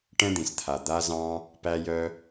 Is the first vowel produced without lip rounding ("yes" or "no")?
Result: yes